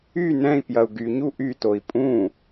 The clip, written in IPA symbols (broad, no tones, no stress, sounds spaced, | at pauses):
y n ɛ̃ i̯ p j ɐ u̯ ɡ y ɲ u ʔ y t o i̯ pʼ ũ